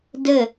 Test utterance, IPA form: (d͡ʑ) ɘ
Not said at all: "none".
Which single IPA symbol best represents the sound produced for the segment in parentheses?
d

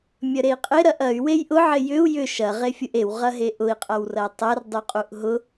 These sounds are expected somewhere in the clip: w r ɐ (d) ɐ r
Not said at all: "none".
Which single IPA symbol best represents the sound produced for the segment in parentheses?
tˤ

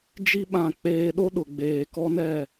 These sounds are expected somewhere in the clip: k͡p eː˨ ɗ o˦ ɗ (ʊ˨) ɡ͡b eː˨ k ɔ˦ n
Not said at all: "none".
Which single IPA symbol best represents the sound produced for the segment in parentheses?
ʊ˨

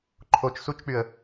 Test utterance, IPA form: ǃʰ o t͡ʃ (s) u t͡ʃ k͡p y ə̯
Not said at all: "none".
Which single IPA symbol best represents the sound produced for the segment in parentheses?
s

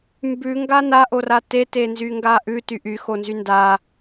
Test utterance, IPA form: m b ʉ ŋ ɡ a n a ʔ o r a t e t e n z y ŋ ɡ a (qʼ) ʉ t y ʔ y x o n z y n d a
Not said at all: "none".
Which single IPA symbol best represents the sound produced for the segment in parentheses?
ʔ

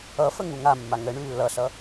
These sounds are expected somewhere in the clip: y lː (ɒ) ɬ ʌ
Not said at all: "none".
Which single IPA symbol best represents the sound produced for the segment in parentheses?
ʌ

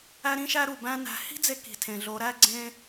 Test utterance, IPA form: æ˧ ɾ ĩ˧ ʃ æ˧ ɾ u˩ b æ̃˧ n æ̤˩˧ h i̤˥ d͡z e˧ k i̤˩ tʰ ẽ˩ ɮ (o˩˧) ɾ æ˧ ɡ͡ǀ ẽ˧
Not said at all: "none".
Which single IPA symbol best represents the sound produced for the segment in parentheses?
o˩˧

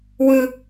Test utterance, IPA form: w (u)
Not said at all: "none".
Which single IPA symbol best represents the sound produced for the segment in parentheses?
ɯ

